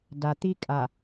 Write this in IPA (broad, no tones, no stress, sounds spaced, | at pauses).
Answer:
d a t̪ i kʼ a